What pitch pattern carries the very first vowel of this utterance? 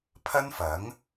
high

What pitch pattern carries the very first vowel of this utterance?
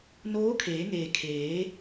rising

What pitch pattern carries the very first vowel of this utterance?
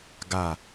low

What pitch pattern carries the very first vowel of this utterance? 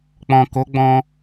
low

